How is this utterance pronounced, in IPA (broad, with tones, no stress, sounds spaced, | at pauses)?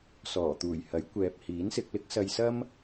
s ɔː˨˩ t̪ uː˨˩ j h ɐ˨˥ j kʷ ɛː˨ p̚ h iː˨˥ n s ɪ˧ k̚ l ɪ˥ k̚ s ɐ˧ j s ɐ˥ m